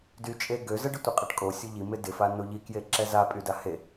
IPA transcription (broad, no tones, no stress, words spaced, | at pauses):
dyt͡ʃʼe ɡøzəɖɪ tʷəqʼeʈkʼo sʲʊʎi mɪdɪfa noʎikje ǁɛzapʼyda he